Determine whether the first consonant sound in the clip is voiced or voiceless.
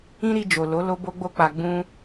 voiced